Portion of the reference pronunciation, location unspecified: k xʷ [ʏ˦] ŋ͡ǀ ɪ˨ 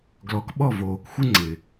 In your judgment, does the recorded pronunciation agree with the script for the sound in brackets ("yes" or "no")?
no